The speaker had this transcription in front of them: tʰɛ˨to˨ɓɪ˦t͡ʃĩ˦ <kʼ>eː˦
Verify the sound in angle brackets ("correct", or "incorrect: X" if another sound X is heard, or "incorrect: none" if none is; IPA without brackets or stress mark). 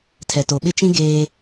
incorrect: ɡ